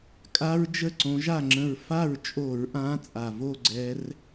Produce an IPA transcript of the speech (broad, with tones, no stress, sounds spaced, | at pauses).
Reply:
kʼ a˥ ɹ d͡ʒ ə˥˨ ǀ õ˨˦ ʒ a˥˨ ŋ͡ǁ ə̃˧˩ ɹ f a˥˨ ɹ t͡ʃʼ o˧˩˧ ɹ ʔ ã˨˦ t͡sʼ a˩ v o˥˨ ɡ͡ǀ ɛ˨˦ r